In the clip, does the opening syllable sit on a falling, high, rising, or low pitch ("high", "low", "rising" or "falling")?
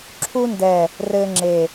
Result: high